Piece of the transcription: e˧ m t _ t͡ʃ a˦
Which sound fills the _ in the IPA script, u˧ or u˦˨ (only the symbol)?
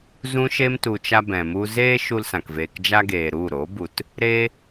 u˧